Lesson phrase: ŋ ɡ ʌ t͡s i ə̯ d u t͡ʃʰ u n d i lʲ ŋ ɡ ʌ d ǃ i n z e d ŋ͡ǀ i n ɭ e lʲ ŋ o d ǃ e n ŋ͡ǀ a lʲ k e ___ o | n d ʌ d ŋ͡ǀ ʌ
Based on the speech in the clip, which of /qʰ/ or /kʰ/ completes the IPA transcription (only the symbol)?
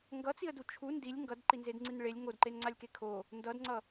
kʰ